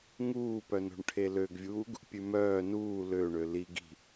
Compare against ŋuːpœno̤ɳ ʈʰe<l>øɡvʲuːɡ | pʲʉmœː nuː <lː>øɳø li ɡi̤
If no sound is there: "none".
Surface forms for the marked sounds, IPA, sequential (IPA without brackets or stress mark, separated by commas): l, l